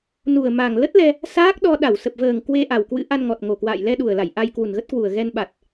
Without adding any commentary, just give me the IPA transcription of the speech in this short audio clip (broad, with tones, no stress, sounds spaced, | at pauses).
n u˨˩ ə̯ m a˨˩ ŋ l ə˦˥ t̚ l ɛ˧ | s aː˦˥ k̚ ɗ ɔ˧ ɗ a˧˩ w s ə˨˩ p̚ v əː˨˩ ŋ k w e˧ ʔ a˨˩ w k w ɨ̰˧˥ ʔ a˧ n ŋ ɔ˨˩ t̚ ŋ o˨˩ k w a̰ː˧˨ j l ɛ˧ ɗ u˨˩ ə̯ l a˧˩ j ʔ a˧ j k w u˨˩ n ɣ ə˦˥ t̚ k w u˨˩ ə̯ ɣ ɛ˧ n ɓ a˨˩ t̚